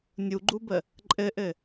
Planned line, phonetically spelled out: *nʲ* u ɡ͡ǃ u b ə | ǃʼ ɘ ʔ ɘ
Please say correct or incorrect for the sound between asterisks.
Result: correct